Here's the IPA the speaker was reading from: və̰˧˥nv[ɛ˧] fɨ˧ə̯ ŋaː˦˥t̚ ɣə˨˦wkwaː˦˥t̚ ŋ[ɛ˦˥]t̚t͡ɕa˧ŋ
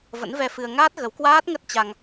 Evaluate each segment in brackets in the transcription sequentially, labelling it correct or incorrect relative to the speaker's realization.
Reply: correct, incorrect: ə˦˥

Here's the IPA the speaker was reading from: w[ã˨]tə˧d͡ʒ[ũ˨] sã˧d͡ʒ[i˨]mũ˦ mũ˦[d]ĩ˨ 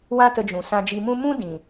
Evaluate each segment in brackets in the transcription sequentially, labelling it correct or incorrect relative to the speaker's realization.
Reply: incorrect: ã˦, correct, incorrect: i˧, correct

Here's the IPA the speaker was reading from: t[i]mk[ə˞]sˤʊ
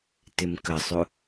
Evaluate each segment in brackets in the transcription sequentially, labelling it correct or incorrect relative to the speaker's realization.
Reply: incorrect: ɪ, incorrect: ə

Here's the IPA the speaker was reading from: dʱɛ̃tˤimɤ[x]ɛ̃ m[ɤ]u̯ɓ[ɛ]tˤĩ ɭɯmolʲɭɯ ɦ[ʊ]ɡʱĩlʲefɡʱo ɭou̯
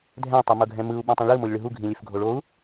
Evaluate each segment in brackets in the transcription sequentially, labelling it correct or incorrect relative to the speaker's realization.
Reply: incorrect: ɡʱ, incorrect: ɯ, incorrect: ɛ̃, incorrect: u

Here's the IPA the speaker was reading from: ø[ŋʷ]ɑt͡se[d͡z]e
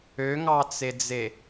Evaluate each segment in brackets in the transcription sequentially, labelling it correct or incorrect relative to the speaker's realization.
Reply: incorrect: ŋ, correct

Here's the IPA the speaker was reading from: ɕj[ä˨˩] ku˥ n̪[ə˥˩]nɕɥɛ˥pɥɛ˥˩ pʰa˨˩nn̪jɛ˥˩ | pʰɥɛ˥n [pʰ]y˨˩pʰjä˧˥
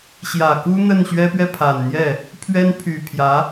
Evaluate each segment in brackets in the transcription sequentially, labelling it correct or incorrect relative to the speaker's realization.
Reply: correct, correct, correct

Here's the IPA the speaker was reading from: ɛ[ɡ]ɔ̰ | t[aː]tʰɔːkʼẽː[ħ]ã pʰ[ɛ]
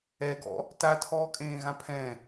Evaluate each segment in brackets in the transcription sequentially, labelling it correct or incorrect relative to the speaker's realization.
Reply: correct, incorrect: a, incorrect: ɣ, incorrect: ɛ̃

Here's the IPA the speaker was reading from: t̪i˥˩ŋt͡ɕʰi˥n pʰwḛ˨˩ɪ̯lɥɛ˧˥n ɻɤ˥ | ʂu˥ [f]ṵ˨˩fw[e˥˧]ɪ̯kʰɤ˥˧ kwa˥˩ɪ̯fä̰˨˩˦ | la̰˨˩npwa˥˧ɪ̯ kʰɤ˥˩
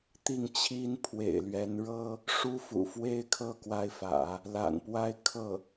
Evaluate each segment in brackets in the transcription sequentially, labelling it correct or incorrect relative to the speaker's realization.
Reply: correct, incorrect: e˥

